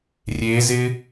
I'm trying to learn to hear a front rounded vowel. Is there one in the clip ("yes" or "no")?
no